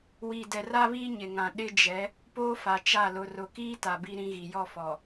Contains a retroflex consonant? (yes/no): no